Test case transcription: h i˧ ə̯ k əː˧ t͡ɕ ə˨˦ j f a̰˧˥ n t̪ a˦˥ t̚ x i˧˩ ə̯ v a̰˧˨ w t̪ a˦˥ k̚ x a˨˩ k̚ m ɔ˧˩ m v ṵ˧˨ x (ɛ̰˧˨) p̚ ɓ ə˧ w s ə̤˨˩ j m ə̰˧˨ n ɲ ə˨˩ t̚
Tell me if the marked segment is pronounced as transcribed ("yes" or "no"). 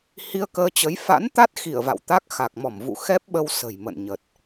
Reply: no